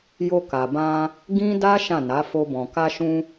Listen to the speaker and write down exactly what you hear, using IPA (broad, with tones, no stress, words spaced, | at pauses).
jo˧ka˨bã˧ | ɡĩ˦da˦ ʃã˦˨na˨˦fo˧bɔ̃˨ ka˧ʃũ˧